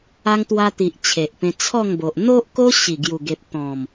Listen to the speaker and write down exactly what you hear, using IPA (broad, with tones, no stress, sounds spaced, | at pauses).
a˧ ŋ t̪ w a˧ t̪ i˨ ʔ t͡ɕʰ e˨ ʔ p ẽ˧ t͡sʰ ɔ˥˧ ŋ b o˨ ʔ n̪ o˦ ʔ k o˦ ɕ i˨˩ ɡ j u˨˩ ɡ e˨ p̚ t̪ ɔ̃˨˩ m